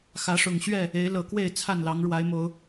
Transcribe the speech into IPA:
x ä˨˦ ʂ ʊ˨˩ ŋ ɕ ɥ ɛ˥˨ | e˨˦ ɪ̯ l ɤ˨˩ k w e˥˨ ɪ̯ t͡sʰ a˥˨ n l ɑ˨˦ ŋ ɻ w a˨˦ ɪ̯ m o˨˦ ʊ̯

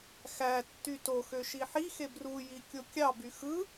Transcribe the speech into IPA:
x æ tː y t o x ø ʃ i ħ i x e b r u j i kʲ o kʲ ɑ b y x ɯ

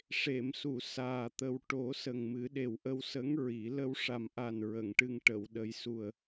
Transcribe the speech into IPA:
ʂ e˨˩˨ m s u˨˩˨ s aː˨˩ t̪ ə˨˩ w ʈ o˨˩˦ s ə˨˩ ŋ m ɨ˨˩˦ ɗ e˨˩ w ʔ ə˧ w s ə˧˥ ŋ ɹ i˨˩˦ l ə˧ w ʂ a˨˩ m ʔ a˨˩ n ɹ ə˨˩˨ ŋ ʈ ɨ˧ ŋ ʈ ə˨˩˨ w ɗ ə˨˩˦ j s u˨˩ ə̯

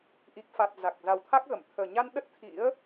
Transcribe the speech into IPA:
ʔ i˨˩ k̚ f a˨˩ t̚ z a˨˩ k̚ z a˨˩ w t̪ʰ a˦˥ k̚ ɣ ə˧˩ m t̪ʰ əː˨˩ ɲ a˧ n ɗ ə˦˥ t̚ t̪ʰ ḭ˧˥ ə̯

